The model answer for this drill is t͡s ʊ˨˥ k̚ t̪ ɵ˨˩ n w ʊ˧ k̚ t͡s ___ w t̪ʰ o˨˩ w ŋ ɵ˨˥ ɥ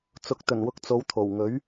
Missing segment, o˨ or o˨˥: o˨˥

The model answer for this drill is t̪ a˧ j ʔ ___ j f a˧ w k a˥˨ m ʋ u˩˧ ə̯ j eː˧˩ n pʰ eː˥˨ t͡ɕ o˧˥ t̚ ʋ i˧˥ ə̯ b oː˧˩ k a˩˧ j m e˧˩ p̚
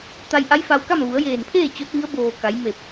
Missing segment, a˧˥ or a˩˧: a˧˥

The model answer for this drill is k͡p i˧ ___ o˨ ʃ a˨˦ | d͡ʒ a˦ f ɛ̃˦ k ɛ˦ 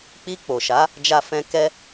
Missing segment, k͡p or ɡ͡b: k͡p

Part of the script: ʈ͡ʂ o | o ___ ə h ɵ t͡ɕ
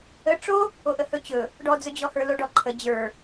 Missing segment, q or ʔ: ʔ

